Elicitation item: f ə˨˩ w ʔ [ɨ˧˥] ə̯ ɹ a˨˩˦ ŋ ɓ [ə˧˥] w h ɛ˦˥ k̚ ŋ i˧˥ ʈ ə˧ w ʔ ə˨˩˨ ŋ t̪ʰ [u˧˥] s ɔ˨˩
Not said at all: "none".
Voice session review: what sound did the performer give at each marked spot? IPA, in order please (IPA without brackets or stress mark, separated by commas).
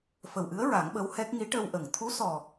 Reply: ɨ˧˥, ə˧˥, u˧˥